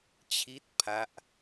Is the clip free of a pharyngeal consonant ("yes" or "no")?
yes